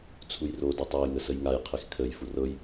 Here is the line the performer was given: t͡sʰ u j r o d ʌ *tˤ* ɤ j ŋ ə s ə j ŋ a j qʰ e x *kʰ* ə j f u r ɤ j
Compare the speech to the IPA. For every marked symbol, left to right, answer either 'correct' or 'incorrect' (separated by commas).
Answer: correct, correct